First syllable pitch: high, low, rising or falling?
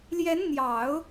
rising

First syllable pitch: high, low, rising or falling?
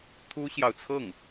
high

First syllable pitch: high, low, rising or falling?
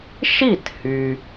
falling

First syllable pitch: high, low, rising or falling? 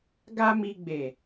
high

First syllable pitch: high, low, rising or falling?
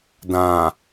low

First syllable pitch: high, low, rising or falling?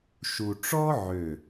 low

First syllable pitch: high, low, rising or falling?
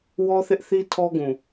high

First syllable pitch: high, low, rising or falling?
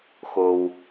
low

